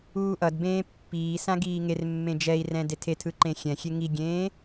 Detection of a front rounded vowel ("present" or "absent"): absent